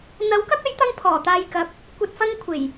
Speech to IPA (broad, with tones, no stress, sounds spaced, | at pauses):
n̪ ɐ˨˥ w k ɐ˥ k̚ ɐ˨˥ j t̪ ɐ˧ ŋ pʰ ɔː˨˩ t̪ aː˧ j k ɐ˨˥ p̚ | kʷ ɐ˧ t̚ f ɐ˥ ŋ kʷʰ e˨˩ j